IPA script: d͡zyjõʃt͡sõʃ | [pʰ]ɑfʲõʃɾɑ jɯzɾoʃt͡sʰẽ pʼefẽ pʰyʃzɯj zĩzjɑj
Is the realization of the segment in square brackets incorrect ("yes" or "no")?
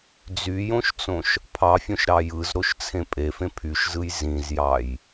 no